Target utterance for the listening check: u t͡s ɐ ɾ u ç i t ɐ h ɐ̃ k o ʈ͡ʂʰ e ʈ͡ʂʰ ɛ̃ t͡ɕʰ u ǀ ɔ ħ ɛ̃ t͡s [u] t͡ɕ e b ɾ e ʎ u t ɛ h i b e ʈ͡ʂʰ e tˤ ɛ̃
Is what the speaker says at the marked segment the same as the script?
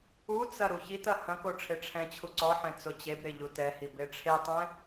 no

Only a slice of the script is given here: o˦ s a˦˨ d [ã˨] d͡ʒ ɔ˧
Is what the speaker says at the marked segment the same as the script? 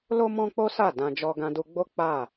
no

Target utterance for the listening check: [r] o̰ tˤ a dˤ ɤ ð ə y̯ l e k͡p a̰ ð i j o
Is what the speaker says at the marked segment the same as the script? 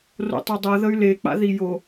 yes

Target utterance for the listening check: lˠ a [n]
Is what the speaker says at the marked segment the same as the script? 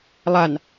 yes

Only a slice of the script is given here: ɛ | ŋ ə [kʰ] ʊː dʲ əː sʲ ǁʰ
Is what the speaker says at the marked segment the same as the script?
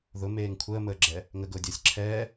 no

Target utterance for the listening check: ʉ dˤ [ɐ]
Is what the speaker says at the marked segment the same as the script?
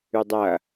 yes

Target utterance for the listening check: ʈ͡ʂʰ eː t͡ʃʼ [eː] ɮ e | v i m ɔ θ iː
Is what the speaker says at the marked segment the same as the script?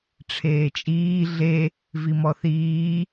no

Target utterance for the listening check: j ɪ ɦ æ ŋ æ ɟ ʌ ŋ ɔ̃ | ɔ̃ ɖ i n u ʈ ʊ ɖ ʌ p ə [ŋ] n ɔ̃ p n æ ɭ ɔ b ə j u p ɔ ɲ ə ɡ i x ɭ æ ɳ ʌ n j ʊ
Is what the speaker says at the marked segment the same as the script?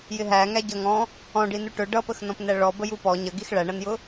no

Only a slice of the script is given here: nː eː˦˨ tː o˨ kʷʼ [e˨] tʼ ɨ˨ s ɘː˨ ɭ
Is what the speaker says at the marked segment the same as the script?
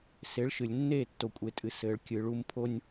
yes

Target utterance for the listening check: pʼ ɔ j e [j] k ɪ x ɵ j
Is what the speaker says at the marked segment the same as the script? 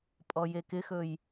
no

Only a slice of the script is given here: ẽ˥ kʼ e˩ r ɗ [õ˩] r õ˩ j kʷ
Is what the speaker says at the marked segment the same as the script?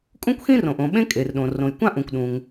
yes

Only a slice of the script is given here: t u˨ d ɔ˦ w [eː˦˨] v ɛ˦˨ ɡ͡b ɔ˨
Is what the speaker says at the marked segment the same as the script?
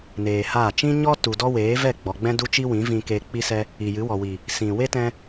no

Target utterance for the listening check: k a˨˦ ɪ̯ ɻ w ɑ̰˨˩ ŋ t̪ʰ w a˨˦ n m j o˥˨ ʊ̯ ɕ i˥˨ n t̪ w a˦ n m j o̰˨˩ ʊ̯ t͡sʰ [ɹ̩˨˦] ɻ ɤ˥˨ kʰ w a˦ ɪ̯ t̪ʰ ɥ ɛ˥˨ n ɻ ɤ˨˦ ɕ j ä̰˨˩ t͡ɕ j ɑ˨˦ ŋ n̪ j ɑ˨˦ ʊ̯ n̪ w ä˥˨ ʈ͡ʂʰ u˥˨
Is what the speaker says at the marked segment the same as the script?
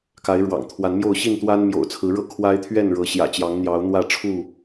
yes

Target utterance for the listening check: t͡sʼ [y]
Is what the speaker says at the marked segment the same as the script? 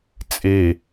no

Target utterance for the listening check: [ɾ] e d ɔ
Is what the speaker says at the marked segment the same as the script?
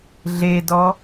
no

